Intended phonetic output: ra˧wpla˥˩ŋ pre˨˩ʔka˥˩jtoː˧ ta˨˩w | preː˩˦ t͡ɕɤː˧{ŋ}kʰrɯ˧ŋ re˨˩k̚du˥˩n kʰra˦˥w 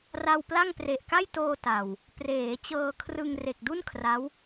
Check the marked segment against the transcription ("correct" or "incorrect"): incorrect